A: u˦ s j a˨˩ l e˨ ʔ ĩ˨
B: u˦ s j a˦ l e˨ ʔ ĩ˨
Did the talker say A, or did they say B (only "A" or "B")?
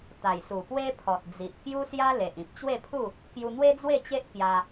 B